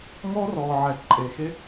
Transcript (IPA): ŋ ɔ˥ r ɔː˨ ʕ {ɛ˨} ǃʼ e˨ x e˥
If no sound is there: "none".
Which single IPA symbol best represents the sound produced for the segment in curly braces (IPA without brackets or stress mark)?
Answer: ɛ˨